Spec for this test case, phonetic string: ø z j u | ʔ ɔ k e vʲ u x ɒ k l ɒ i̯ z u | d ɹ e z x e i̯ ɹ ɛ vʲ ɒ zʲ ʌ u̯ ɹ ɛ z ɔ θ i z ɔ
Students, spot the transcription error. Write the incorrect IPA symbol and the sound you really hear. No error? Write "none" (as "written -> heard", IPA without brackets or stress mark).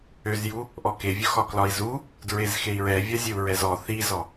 ʌ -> ə